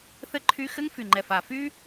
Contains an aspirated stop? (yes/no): yes